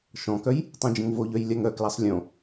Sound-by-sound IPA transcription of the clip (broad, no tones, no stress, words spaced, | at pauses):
ʃɔ̃kœj | tˤõd͡ʒə̃ŋvoʎœj lʲaŋœklasˤ lʲõ